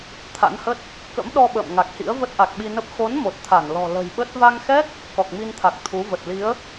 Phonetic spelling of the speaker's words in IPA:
t̪ʰ a̰˧˥ n h ə˦˥ t̚ | k ə̰˧˥ m ɗ ɔ˧ ɓ ə̰ː˧˨ m ŋ a˨˩ k̚ h ḭ˧˥ ə̯ v ə˦˥ t̚ ʔ a˨˩ k̚ ɓ i˧ n ə˦˥ p̚ x o˨˦ n m o˨˩ t̚ t̪ʰ a˧˩ n l ɔ̤˨˩ l ə̤˨˩ j ɓ ə˦˥ t̚ v a˧ ŋ x ɛ˦˥ k̚ | k ɔ˨˩ k̚ m i˧ n t̪ʰ a˨˩ k̚ t̪ʰ u˨˦ v ə˨˩ t̚ l i˨˦ ə̯

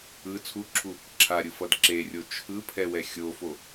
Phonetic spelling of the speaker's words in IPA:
ɯ t͡sʰ u ǁʰ u | ǁʰ a ɾʲ ɯ f ʌ d ǁ e rʲ o t͡ʃʰ ɯ pʰ ɛ w ɛ xʲ o f o

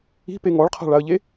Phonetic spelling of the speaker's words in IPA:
i̤ p e ŋ ɔ ɭ qʰ a̤ ɭ a ə̯ ʎ e

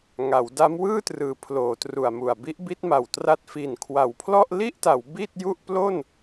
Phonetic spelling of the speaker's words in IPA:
ŋ a˩˦ w d a˦˥ m w ɯː˥˩ t r ɯː˩˦ pʰ l oː˩˦ t r u˨˩ a̯ m u˨˩ a̯ b i˦˥ ʔ b i˦˥ t̚ m a˨˩ w t r a˦˥ t̚ f i˨˩ n kʰ w a˩˦ w pʰ l ɔ˥˩ ʔ l i˥˩ ʔ t a˩˦ w b i˥˩ t̚ j u˥˩ ʔ p l o˥˩ n

